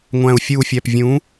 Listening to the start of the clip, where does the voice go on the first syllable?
low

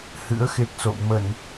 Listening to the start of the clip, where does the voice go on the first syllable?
rising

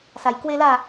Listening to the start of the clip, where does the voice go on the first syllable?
low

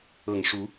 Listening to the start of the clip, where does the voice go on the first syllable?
low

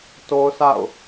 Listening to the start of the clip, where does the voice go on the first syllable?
high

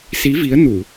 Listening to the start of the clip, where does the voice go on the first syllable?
rising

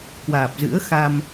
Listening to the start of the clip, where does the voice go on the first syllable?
low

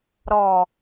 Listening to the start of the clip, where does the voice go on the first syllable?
low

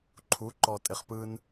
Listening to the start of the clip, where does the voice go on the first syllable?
rising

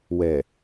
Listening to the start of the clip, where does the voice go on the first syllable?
low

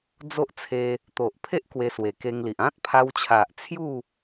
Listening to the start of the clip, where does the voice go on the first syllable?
high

